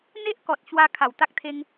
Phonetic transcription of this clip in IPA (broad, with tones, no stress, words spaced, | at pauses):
n̪e˦ʔkɔ˨t̚ ɕwa˧ kʰa˨˩wt̪a˦k̚t̪ʰe˧ŋ